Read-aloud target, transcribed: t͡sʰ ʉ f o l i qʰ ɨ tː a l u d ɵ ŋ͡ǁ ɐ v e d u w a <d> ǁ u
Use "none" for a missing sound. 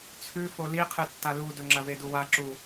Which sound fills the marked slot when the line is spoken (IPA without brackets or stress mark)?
none